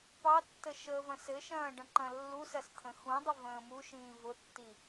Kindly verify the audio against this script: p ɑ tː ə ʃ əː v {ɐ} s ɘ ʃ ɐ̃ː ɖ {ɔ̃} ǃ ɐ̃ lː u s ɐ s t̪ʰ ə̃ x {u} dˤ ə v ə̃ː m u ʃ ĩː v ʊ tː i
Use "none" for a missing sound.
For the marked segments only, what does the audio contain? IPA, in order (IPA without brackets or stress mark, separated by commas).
ɐ̃, ə̃, ũ